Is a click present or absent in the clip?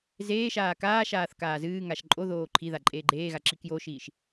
present